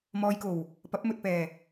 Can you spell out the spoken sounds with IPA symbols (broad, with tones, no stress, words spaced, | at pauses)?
mɔː˧jko˨˩w | pɐ˨˥p̚mɵ˨t̚pɛː˨˩